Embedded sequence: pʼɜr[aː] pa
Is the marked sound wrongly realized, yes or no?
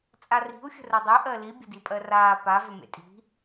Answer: no